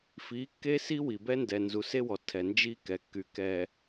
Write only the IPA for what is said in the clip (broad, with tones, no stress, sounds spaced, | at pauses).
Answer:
f i˨˦ kː e˦ s i˦ w i˨ b ɛ˦ n d ɛ˨ n z u˨ s e˦ w ɔ˨ tʰ ɛ˨ n d͡ʒ i˦ k ɛ˨ kː y˨ k ɛ˨